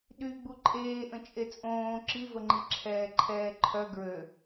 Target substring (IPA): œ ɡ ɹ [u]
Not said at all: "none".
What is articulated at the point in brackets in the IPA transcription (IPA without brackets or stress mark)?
ø